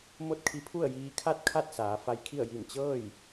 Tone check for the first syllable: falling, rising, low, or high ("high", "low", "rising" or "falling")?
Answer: falling